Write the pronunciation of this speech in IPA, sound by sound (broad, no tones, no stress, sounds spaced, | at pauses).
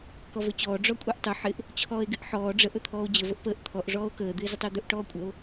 k ɔ v ɵ t͡ɕ ɔː ɖ͡ʐ ɔ kʷʼ e ʔ tˤ ɵ ħ ɪ ʔ | t͡ɕʰ ɔː e̯ ɡ ɪ ʔ ħ ɔː ɖ͡ʐ ə ʔ ɵ t̪ʰ ɔː o̯ d͡ʑ ə v ə ʔ p əː ʔ t̪ʰ ɔ ʔ ʐ ɔː o̯ k əː d̪ ɪː z ə tˤ ɪː d̪ ɵ ʔ ʈ ɔː kʷʼ ə o̯